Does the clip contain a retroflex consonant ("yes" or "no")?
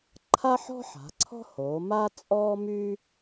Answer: no